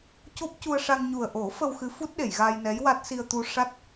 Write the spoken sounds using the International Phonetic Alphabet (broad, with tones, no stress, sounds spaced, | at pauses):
c o˦˥ p̚ c u˧ ə̯ ʂ a˧ ŋ ɲ u˨˩ ə̯ ʔ o˨˩˦ f ə˧ w x ɨ˧˥ f u˦˥ t̚ ɗ e˨˩˨ j ɣ a˧ j n ɛ˧˥ j w a˦˥ t̚ s i˧ ə̯ t̪ u˧ ʂ a˦˥ t̚